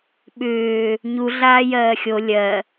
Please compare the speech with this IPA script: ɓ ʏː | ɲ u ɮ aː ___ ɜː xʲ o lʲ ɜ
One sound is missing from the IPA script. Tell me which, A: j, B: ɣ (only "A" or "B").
A